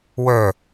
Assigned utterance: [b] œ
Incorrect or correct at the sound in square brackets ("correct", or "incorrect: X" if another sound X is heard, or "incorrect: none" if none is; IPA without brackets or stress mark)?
incorrect: w